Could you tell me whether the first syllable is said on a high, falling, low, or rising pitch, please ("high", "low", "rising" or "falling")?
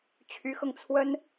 rising